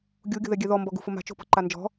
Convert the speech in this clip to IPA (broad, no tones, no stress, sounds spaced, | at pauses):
ɡʲ u ɡʲ o̤ ð ɛ ɡʲ ɛ ð ɔ m b ɔ ɡ ṳ f ʊ m a̤ t͡ʃ o̤ p ɔ̤ ǃ a n d͡ʒ ɔ̤